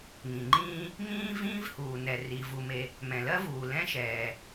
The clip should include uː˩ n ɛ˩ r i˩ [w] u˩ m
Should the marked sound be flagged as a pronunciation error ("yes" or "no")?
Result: yes